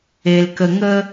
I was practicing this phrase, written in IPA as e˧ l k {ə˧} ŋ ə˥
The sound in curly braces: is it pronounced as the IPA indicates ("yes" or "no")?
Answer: yes